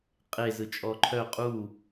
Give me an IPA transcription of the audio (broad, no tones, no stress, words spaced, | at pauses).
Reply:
qʼe zɯt͡ʃʼɔǃʰœ qʼu